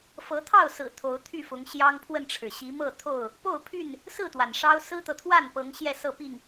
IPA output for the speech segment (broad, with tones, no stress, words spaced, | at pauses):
fɤ˨˦t̪ʰɑ˥˨ʊ̯sɹ̩˨˩ t̪ʰo˨˦ʊ̯t̪ʰy˥˨fʊ˨˦ŋ ɕjɑ˦ŋpʰwə˥˨nʈ͡ʂʰɻ̩˩ ɕi˨˦mɤ˥˨t̪ʰo˥˨ʊ̯ | po˥˨ʊ̯pʰy˥˨n | sɹ̩˥˨t̪wa˩n ʂɑ˦ʊ̯ sɹ̩˦t̪ɤ˨t̪ʰwa˥˨npɤ˨˦ŋ ɕjɛ˥˨sɤ˥˨pi˥˨ŋ